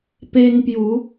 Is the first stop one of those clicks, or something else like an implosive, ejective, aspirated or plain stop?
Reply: plain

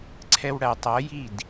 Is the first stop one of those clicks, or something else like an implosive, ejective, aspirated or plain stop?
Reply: click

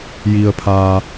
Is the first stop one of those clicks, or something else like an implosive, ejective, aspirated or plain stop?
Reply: aspirated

